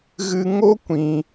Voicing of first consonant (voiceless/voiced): voiced